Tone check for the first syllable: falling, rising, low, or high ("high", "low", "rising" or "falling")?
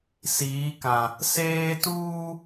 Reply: rising